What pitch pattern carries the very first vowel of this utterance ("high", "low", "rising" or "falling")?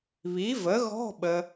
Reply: rising